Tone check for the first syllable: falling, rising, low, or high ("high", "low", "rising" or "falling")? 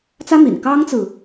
high